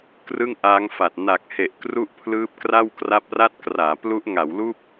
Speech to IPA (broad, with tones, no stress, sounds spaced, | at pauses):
k r ɯ˥˩ ŋ ʔ aː˦˥ ŋ f a˨˩ t̚ n a˨˩ k̚ h e˨˩ ʔ k r u˥˩ ʔ pʰ l ɯː˦˥ p̚ k r a˥˩ w k r a˦˥ p̚ r a˥˩ t̚ k r aː˩˦ p l u˦˥ ʔ ŋ a˩˦ w l uː˥˩ p̚